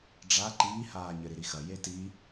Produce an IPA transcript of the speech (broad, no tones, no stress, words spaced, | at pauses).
ɖ͡ʐa ǃiːhaːɲɘ ɾiɾixɐ jeti